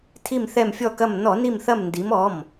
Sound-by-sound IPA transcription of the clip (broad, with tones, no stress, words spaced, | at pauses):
tʰi˧˩mθɛ˧˩mfʲɔ˧˩kɐ˧˩m nɔ˧˩˧ni˧˩mθɐ˧˩mndi˩˧m ɔ˩˧˩m